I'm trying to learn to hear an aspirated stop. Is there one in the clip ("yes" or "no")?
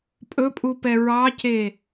no